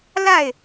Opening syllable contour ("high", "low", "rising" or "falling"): falling